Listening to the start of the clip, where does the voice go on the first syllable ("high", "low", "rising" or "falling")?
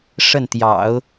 falling